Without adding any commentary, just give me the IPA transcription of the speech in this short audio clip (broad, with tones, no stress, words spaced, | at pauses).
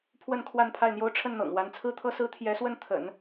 pʰwə˥˧nkʰwa˥˧n pʰa˥˩ɪ̯n̪jo˥ʊ̯ ʈ͡ʂʰə˥˩nn̪ɤ̰˨˩ŋ wa˧˥nt͡sʰɹ̩˥t̪ʰɤ˥sɹ̩˥ t̪ʰjɛ˧˥swə˥˩n t̪ʰə̰˨˩˦n